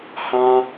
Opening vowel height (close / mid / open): open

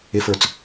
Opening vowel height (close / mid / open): close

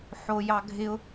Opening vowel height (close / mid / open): mid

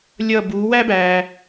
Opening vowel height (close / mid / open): mid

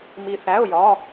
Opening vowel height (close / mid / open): close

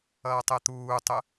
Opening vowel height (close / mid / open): mid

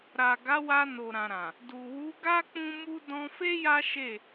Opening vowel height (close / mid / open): open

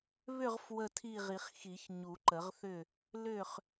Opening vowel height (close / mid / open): close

